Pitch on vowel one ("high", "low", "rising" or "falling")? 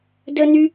high